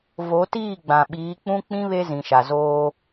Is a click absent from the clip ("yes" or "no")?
yes